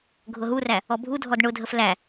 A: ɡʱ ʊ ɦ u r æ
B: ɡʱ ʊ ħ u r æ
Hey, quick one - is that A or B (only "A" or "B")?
A